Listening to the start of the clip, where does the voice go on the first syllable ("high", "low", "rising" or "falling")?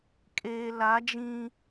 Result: low